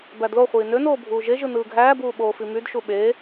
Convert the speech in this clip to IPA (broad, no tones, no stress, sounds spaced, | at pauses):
b æ d l o χʷ iː n ø n oː bʱ uː ʒ e ʒ ɯ n ɯː ɡʱ æː b uː ɓ oː f i m y d ʃ u ɓ eː